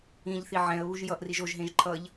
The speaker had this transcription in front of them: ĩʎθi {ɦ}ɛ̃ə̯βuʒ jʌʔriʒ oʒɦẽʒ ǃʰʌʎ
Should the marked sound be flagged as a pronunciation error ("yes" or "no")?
yes